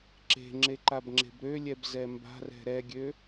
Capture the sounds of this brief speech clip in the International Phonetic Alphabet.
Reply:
ǁe̤ŋ͡ǁe ǃabŋ͡ǁe̤bɾølʲɛb zɛmba̤rɛ̤ ɾɛɡʲø

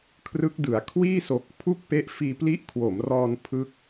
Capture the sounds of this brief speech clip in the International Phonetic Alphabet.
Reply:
kʰrɯ˦˥k̚dɯ˩˦a̯ kʰwiː˥˩so˨˩k̚ pʰu˥˩k̚pe˦˥ʔ fiː˧pli˦˥ʔkʰwo˩˦mrɔː˧n pʰɯ˦˥k̚

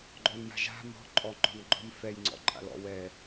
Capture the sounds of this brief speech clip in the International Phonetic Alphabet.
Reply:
ɡ͡ǃɔnja̤ʒa̤ mɔ̤ ǃʼɔŋ͡ǃɔ̤nɡ͡ǃɔ̤m fɛjŋ͡ǀɔ̰ ǃʼa̰lɔ̰ wɛ

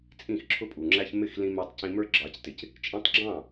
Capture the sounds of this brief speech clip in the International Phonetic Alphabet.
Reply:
t͡sʼĩ˦˨xǁʰʊ˦pʼu˨ŋ͡ǁæ˦ç mɪ˦˨x lĩ˧ mɛ˧tˤcĩ˧mə˞˦ ɡ͡ǁɑ˨˦ctɪ˨c | t͡ʃʼĩ˧tˤɡ͡ǁɑ̃˦˨

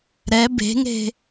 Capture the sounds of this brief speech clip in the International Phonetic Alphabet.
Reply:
ɾɛ be̤ŋe̤

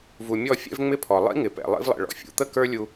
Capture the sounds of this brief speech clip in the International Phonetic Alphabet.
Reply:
vu˨mʲɔ˦˨ fʲɛ̰˦vŋ͡mɪ˦pʰɔ˨ lˠḭ˦ŋɪ˨pɛ̰˨ lˠḭ˦vlˠɛ̰˨ɭɔ̰˨ fʲṵ˨˦t̪ə˦kə˞˦ lʲu˦

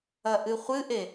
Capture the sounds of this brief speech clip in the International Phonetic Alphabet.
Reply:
ɐʔɨχʷɨʔe

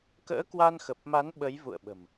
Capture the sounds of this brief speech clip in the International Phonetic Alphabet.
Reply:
kə̰ː˧˥kwa˧n xə˨˩p̚ma˨˦n ɓə˨˦jvṵ˧˨ə̯ɓə̤˨˩m

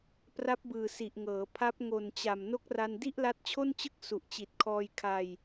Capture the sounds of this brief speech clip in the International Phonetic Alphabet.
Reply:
pra˦˥p̚bɯː˨˩ si˨˩ʔŋɤː˩˦ pʰa˦˥p̚ŋo˨˩nt͡ɕa˨˩m no˦˥k̚ra˧ndi˥˩ʔ la˦˥t̚t͡ɕʰo˥˩nt͡ɕɯ˥˩k̚ su˨˩ʔt͡ɕi˨˩t̚kʰɔː˧j kʰa˧j

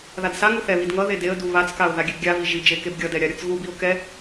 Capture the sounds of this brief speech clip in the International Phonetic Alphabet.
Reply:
ðadsaŋu θɛβid ŋʌ ðedeə̯du βat͡skaʊ̯ ðaɡʲɛbɡʲavi ʒi d͡ʒekebɡʲʌdɛ ɾʲaɾʲʌt͡sɣubiʊ̯ kɛ

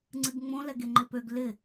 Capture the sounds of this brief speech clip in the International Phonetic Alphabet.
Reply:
ŋ͡ǀɨɡŋ͡mõ lɛɡeŋ͡ǃɪpøɡ lɪ

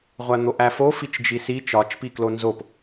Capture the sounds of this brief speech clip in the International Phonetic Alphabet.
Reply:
ʁʷæn̪oʔæfo fit͡ʃd͡ʒisi t͡ʃɒt͡ʃ piklonzop

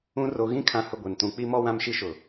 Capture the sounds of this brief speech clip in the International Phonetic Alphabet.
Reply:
ũ˦ ro˨ɣĩ˦ kʰã˦hʊ˦ɡʷe˨ntũ˦ k͡pi˦mɔ˦ wã˦mʃi˦ʃʊ˨

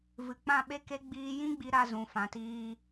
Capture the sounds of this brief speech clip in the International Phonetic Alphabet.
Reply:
vɨ˨k͡pã˦˨ɓe˦ke˦ ɡ͡biː˧jĩ˦ɡ͡bi˧ ɾa˧zũ˨ fã˨tiː˧

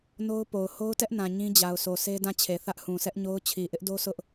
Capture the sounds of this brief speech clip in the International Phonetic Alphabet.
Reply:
no˦ʊ̯ po˨ʊ̯ ho˦ʊ̯tɛ˦ʔnã˨ ɲĩ˦d͡ʑa˨ʊ̯sʰo˨ sʰe˦dã˦˨t͡ɕʰe˨ θä˦ʔhũ˨sɛ˦ʔɲo˦ʊ̯ t͡ɕʰi˨ʔɪ˦ʔdo˦sʊ˦ʔ

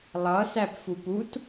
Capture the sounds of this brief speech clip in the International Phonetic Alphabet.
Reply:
lˠʌsæpfup ut

